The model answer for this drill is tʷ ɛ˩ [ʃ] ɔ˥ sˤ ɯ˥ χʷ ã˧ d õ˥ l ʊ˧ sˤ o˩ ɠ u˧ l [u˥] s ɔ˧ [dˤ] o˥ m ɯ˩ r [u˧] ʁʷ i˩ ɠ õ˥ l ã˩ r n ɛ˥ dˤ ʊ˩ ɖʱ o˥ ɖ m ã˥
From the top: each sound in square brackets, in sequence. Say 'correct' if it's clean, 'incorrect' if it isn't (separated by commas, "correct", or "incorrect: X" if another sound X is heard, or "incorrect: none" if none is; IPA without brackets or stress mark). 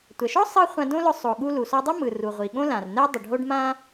correct, incorrect: u˩, correct, incorrect: u˩